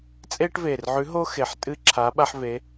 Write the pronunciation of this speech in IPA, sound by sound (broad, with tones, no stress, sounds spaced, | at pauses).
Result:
t͡sʼ eː˥ ʈ v eː˨˩ r ʕ ʉ˧˥ ɦ o˥ x e˨˩ ħ tʼ ɨ˥ ǁʰ a˧˥ ɓ a˥ ħ v e˧˥